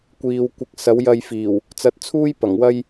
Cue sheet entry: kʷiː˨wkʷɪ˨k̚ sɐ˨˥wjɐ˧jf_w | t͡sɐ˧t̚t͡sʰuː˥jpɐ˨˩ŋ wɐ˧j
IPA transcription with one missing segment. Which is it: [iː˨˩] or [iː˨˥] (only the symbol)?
iː˨˩